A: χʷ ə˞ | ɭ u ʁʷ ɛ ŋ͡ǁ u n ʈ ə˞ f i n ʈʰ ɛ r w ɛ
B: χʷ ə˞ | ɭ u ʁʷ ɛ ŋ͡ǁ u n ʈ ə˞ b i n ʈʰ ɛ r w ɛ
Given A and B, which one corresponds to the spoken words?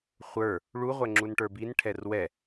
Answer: B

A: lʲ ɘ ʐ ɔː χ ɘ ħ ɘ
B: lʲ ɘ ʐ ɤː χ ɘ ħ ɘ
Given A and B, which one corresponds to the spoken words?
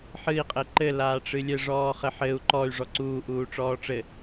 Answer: A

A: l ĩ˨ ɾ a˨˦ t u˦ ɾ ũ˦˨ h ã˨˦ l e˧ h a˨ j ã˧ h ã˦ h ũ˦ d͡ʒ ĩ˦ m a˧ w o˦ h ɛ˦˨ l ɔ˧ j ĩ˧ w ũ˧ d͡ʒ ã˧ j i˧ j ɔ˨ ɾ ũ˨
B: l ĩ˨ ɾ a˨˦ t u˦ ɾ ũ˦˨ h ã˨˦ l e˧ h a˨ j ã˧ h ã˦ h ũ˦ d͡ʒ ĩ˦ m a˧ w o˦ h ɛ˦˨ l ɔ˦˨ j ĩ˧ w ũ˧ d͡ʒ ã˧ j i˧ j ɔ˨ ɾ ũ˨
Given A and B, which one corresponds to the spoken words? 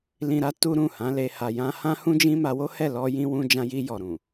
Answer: A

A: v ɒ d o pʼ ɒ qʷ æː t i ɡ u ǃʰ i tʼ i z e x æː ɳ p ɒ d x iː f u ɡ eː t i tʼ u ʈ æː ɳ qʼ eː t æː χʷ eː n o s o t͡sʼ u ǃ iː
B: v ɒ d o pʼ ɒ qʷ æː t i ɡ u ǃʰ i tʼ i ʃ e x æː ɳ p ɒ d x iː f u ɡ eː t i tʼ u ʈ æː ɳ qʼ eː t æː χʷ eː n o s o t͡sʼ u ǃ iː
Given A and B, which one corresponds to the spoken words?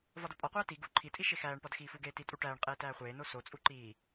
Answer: B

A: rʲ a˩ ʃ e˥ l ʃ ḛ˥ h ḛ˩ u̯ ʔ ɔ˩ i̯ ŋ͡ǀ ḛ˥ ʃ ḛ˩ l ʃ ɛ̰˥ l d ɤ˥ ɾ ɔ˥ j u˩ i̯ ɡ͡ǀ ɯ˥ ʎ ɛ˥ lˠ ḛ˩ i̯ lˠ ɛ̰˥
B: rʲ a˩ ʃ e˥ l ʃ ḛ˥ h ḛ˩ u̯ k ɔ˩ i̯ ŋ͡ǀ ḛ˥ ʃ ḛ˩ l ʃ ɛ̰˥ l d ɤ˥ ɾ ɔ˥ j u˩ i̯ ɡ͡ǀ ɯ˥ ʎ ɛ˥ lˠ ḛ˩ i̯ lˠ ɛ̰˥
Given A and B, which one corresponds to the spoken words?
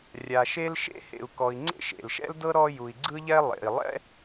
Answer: B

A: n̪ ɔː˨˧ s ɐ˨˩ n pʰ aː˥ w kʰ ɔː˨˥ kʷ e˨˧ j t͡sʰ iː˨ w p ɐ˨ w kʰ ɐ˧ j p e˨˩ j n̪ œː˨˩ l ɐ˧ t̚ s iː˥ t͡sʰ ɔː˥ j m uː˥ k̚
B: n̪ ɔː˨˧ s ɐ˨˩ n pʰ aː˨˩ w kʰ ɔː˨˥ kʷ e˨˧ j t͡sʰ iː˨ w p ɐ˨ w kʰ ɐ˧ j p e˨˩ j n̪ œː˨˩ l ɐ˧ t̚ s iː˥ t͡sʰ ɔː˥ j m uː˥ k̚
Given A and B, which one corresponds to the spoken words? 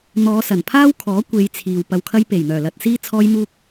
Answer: A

